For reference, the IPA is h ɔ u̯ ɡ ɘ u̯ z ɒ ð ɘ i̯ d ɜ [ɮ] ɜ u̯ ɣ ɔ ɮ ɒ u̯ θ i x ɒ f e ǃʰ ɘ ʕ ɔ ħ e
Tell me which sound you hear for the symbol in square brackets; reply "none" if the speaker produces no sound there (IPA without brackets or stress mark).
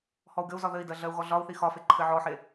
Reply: ɮ